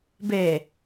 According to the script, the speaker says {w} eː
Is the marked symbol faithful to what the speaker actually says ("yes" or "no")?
no